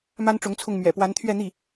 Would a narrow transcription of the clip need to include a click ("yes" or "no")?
no